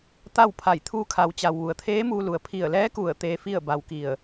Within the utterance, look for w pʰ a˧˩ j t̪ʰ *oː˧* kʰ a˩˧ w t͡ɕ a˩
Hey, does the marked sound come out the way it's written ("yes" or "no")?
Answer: no